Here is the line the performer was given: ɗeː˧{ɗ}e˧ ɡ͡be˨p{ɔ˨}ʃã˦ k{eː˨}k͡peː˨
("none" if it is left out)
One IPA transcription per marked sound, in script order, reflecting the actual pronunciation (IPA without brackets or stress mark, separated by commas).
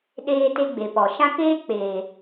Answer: t, ɔ˨, eː˦